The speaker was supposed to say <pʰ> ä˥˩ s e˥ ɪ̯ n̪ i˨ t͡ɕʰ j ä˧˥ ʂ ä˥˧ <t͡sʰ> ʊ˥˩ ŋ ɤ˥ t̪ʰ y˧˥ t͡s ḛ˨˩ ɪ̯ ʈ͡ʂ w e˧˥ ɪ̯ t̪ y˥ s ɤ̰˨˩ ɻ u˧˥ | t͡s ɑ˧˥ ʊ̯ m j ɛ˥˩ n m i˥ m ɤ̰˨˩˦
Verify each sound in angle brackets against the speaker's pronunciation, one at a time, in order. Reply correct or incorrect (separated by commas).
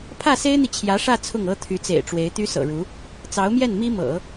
correct, correct